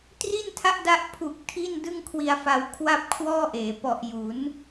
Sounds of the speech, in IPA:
tri˥˩ntʰa˥˩ʔda˦˥ʔ pʰu˨˩k̚ tʰi˥˩ndɯ˥˩ŋkʰwi˧a̯fa˧w kʰwa˥˩p̚kʰwɔː˥˩ʔeː˩˦ pɔ˨˩ʔju˩˦n

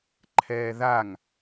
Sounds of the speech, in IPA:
ǃʰɛːðaŋ

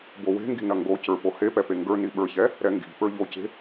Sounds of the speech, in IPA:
bowe̤ŋɡi̤ nɐŋɡocə˞ pohepɛ peŋɡə˞ni ɓə˞çɛ | ɾɛŋɡi̤pə˞ ʎoce̤

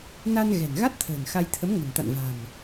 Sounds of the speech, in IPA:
na˧nɣɛ̤˨˩n ɣa˦˥t̚t̪ʰə̤ː˨˩n xa˧j t̪ʰə˨˦mŋə̤˨˩nt̪a̰˧˨n va̤˨˩m

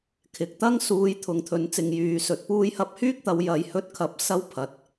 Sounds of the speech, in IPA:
kʰɪ˨k̚ t̪ɐ˥ŋ suː˨˧j t̪ʰʊ˨˧ŋt̪ʰɵ˨˧nt͡sɪ˨ŋ jyː˨sɵ˨˥t̚ puː˧jhɐ˧p̚hyː˥k̚t̪ɐ˨˧w jɐ˨jhɵ˧t̚ kʰɐ˨˥p̚ sɐ˥wpʰɐ˨t̚

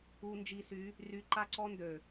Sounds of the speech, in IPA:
u˨nd͡ʒi˨sy˨˦ | ry˨ǃa˦ ǀɔ˦ndø˨

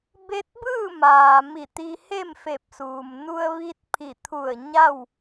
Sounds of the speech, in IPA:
be˧˥t̚bɯː˥˨maː˩ mi˧˩t̪i˧he˥˨mfe˧˩p̚ suː˩mnu˧ə̯ ʋi˧t̚ pʰi˧˩t̪ʰu˧˩ə̯ ɲa˥˨w

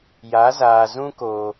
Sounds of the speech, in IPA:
ja˨˦zaː˨ zũ˦koː˨

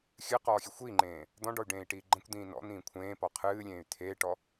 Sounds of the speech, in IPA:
xʲɨqɔːxʲe xʷiŋ͡ǃẽː | d̪ɔ̃ɖɔy̯ɖẽːi̯ʈiː ɡ͡ǃə̃kʷd̪ĩː nɔ̰n̪ĩː kʷʰẽːpɔ qʰɨːlʲẽːy̯ t̪ʰeʈɔ

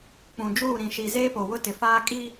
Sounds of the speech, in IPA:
k͡pũ˨d͡ʒuː˦˨ ɾĩ˨ʃi˨ zeː˦po˨wʊ˦ tɪ˨faː˦ kʼiː˦

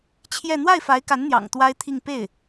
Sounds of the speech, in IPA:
t͡ɕʰjɛ˥˧ n̪wa˥˩ɪ̯fa˧˥ɪ̯ka˧˥nn̪jɑ̰˨˩ŋ t̪wa˥ɪ̯ t̪ʰi˥˧ŋ pe˥˩ɪ̯

